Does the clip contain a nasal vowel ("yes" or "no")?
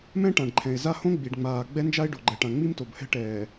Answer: yes